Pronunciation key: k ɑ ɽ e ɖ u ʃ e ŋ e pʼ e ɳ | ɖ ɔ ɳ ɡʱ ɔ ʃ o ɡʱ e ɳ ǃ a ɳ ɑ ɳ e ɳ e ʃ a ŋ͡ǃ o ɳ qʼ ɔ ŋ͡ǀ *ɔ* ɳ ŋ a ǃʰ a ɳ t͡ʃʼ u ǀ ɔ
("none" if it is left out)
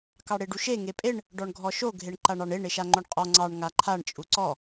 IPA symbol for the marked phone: ɑ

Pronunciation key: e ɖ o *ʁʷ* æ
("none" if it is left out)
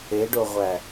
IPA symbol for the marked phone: ʁʷ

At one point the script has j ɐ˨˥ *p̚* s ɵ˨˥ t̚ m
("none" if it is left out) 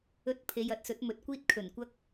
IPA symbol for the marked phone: t̚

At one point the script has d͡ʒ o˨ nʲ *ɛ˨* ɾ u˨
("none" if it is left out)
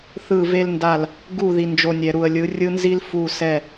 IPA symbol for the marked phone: ɛ˨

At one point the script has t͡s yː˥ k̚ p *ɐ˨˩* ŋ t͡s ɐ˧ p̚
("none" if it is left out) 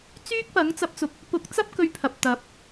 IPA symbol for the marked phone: ɐ˨˥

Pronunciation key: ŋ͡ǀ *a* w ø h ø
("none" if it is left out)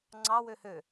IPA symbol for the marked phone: ɑ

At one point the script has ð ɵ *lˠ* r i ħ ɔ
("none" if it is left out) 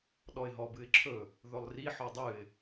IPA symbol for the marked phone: lˠ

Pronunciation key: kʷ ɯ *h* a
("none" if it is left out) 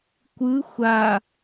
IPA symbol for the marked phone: xʷ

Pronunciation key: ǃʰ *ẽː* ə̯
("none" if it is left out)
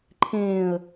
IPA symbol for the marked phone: ẽː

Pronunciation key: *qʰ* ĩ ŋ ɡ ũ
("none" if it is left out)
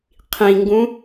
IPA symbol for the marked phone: qʰ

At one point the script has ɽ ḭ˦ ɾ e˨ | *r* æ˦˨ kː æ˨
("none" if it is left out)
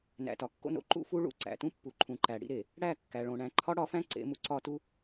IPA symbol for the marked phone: ɽ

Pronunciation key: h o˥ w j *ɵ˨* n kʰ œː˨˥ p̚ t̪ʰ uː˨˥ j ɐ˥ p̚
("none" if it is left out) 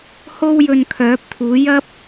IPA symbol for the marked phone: ɵ˧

